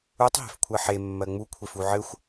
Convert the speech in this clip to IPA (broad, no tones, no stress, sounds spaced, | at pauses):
u tˤ ɦ e̤ f kʷʰ ɜ ħ e mː ɜ ŋ͡m u kʷʰ e f u ʕ ɘ xʷ